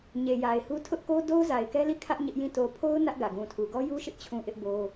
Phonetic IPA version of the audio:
ɲ e˨ j a˨ ɪ̯ h u˦ tʰ ʊ˦ ʔ k o˦ d o˦ ʊ̯ z a˨ ɪ̯ k ɛ˦ l i˦˨ kʰ ä˦ ʔ ɲ ɪ˦ ʔ j ĩ˦˨ t o˨ pʰ o˦ ʊ̯ n ä˦ ʔ ɡ ä˨ ɡ ũ˨ tʰ u˨ ɡ ɔ˦ j u˦ ʃ ɪ˦ ʔ t͡ɕʰ ũ˦ ʔ ɪ˦ ʔ b o˦

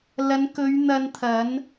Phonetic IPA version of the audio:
l ɐ˨˧ n k ɵ˨˧ ɥ n̪ ɐ˧ n t̪ʰ ɐ˨˧ n

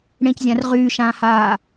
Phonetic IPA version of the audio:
ɽ ẽ c zʲ ã r ʁ yː ʃ ãː h aː

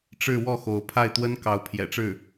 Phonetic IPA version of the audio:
ʈ͡ʂ ɻ̩˥˧ w ɔ˥˩ x o˧˥ ʊ̯ pʰ a˥˩ ɪ̯ t̪ w ə˥ n k ɑ˧˥ ʊ̯ pʰ j ɛ̰˨˩ ʈ͡ʂ ɻ̩˥˩

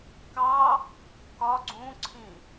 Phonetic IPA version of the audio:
k ɑ | k ɒ ɡ͡ǀ ũ ǀʰ ĩ

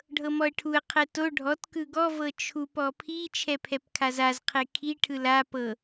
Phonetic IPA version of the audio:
ɖʱ ɤ m ɔ ə̯ ʈʰ u ə̯ qʰ ɛ t o ɖʱ ɔ t k ɯ ɡ ɔ v ɤ t͡ʃʰ u p ɔ pʰ i t͡ʃʰ ɛ pʰ ɛ p kʰ a z a z qʰ e kʰ i ʈʰ ɯ l a p ɤ

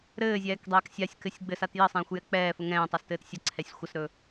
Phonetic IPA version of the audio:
ɾ ɘː zʲ ɛː k dˤ ɛː k sʲ a sʲ k ɘ sʲ ɡ͡b ɘ s a t j ɘ sˤ ɛ̃ː xʷ j ɛ k͡p ɛː f ə ŋ ɛ̃ː tˤ a s t ɘː t sʲ ə ǀʰ ɛ sʲ xʷ ə s ɾ ɵ

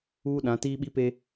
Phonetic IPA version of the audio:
uː˦ ɗ ã˨˦ t iː˦ ɓ i˦ p e˦

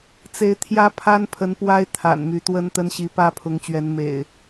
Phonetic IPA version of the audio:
t͡s e˨˦ ɪ̯ t̪ʰ j ä˦ pʰ a˦ n pʰ ə˨˦ n p w a˦ ɪ̯ t̪ʰ a̰˨˩ n m y˨˦ t̪ w ə˦ n t̪ ə˦ n ɕ i˨˦ p ä˦ pʰ ʊ˨˦ ŋ t͡ɕ ɥ ɛ˨˦ n m ḛ˨˩ ɪ̯

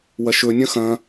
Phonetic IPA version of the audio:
w ɐ ʃ ɵ nʲ ɐ̃ x ɐ̃

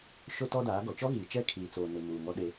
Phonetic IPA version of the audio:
ʃ o˦ t ɔ˦ d aː˨˦ ɡ ɔ˨ t͡ʃ ɔ˦ ɣ iː˨ t͡ʃ ɛ˦˨ kʰ iː˨ t͡s oː˨ n ɪ˨ m uː˨ ŋ ɔ˦ ɗ e˦

